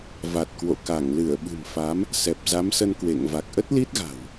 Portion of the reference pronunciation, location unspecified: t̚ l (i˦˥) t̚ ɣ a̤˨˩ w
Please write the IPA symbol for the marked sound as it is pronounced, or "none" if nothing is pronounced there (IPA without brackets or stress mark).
i˦˥